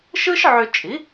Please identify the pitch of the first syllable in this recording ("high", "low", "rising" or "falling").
high